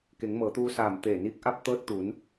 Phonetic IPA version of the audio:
ke˩˧ŋmɤː˩˧t̪uː˧ saː˧˩m t̪eː˧˩niː˧k̚ʔa˥˨p̚ t̪ɤː˧t̚ t̪u˩˧n

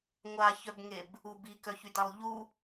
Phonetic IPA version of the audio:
ŋʷaçœbŋeb | ub ikœçydalˠ ʎu

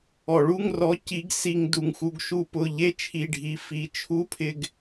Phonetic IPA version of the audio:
ɔ˩ɭu˧˥˧ŋrɔ˨˥ ci˨˥ɡsi˧ŋ du˩ŋxu˩˧ɡʃu˧ pʊ˩˧˩ʎe˧˥˧t͡ʃʰi˩˧˩ɖʱi˩˧ fi˩˧t͡ʃʰu˧˥˧pʰɪ˧ɡ

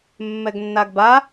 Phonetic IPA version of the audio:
mːɛɡnːaɡba

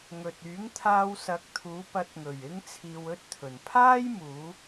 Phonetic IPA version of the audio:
ŋɵ˨t̚ yː˨˥ŋ t̪ʰaː˧wsɐ˨˥k̚ t̪ʰuː˨˧pɐ˨˥t̚ŋɵ˨˩ɥ ɪ˥ŋt͡sʰiː˧wɵ˥t̚t̪ʰɵ˨˩n pʰaː˥jmuː˨˧

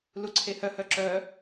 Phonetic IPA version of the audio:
luǀʰehœ hœǁœ

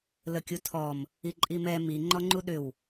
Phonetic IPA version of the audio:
ləkʲutʰɔm | iǃʼimɛ mi ŋ͡ǃɔŋ͡ǃuɗʏw

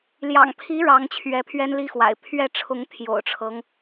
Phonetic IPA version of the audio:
ljɑ̰˨˩ŋ pʰi˧˥ ɻɑ˧˥ŋ t͡ɕʰɥɛ˧˥pʰɥɛ˥nli˥xwa̰˨˩ɪ̯ pʰɥɛ˥˩ʈ͡ʂʰʊ˧˥ŋ t̪ʰjo̰˨˩ʊ̯ʈ͡ʂʰɤ˦ŋ

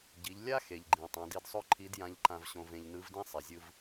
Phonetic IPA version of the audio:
ɟi˩˧ʎ lʲa˥ xe˩ʎɡ͡ǃĩ˩ tˤã˩˧di˧dsˤo˥ ǃʰi˧˥djã˧˥ʎǃã˧vɕõ˧v ẽ˧ʎnɯ˧˥vdĩ˥ sˤe˩zʲɯ˧v

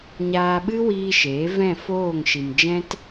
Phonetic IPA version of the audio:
ɲaː˧ɓɨ˦wiː˧ ʃeː˨˦ vɛ̃˦˨foː˦˨ŋ ʃi˨md͡ʒɛ̃˦t

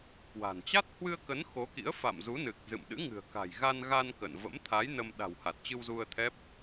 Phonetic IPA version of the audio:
kwa̤˨˩n t͡ɕa˦˥t̚hwɨ˧ə̯kə˨˦n xo˨˦kḭ˧˥ə̯ fa̰˧˨mzu˨˦nɨ˨˩k̚ zɨ̰˧˨m ɗɨ̰˧˥ŋɨ̤˨˩ə̯ka̤˨˩j ɣa˧nɣa˧n kə̰˧˨n və̰˧˥mt̪ʰa˨˦j nə˧m ɗa̤˨˩w ha˨˩t̚t͡ɕɨ˧wzu˧ə̯t̪ʰɛ˦˥p̚

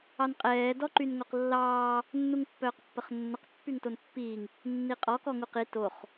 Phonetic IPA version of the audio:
ɑnqʼɛː dɔǃynŋoqlːɑː | nːuŋpːœːqpːəχnːəq pːyŋtonpːiːŋ | nːiqʼɔ kɔŋuqi toχ

